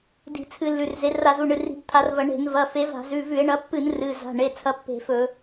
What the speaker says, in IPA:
d i̤˧˩˧ t͡sʰ ɨ˧˩˧ lː ʉ˩˧˩ r z e˨˦ r a˧˩˧ z u˩˧˩ ɳ ɨ˩˧˩ r i̤˧˩˧ b t̪ʰ a˨˦ r v ɐ˧˩˧ ɳ e̤˧˩˧ n v ɐ˩˧˩ f e˨˦ v a̤˧˩˧ z ʉ˩˧˩ v ʉ˧˩˧ e̯ ɳ ɐ˨˦ pː ɨ˧˩˧ n r ɨ˩˧˩ z a̤˩˧˩ ɳ e˩˧˩ t͡sʰ ɐ˨˦ pː e̤˧˩˧ f ɵ˧˩˧

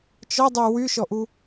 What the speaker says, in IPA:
t͡ʃ ɔ dˤ y w y ʃ ɔ ʔ u

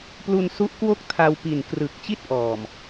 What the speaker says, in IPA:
p l u˧ n s u˦˥ ʔ k w o˥˩ k̚ tʰ a˧ w p i˨˩ n k r ɯ˨˩ k̚ t͡ɕ i˥˩ t̚ ʔ ɔː˨˩ m

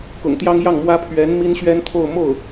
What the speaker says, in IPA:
k ʊ̰˨˩ ŋ t̪ j ɑ˥ ŋ j ɑ˥˩ ŋ m w ä˥ pʰ ɥ ɛ˧˥ n m i˥ n ɕ ɥ ɛ˥ n t̪ʰ o˥˧ ʊ̯ m o˥˩ ʊ̯

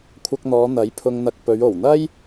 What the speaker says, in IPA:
kʷʰ ɐ˧ k̚ n̪ ɔː˨˧ n̪ ɐ˨˥ j pʰ ʊ˧ ŋ n̪ ɐ˧ k̚ p ɵ˨˧ ɥ o˨˩ w n̪ ɐ˥ j

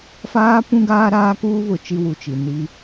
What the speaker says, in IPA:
f aː˦ p ũ˦ ɡ aː˦ ɾ aː˦ k uː˦ β ʊ˨ t͡ʃ i˦ w u˨ t͡ʃ i˨ n i˦

